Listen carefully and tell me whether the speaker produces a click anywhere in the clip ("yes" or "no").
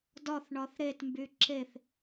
yes